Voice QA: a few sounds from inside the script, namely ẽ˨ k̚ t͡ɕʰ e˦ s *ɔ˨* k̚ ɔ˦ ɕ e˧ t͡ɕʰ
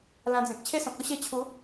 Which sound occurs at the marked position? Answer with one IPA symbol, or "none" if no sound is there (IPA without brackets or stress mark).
ɔ̃˨